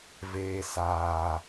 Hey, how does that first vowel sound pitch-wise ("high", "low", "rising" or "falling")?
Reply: high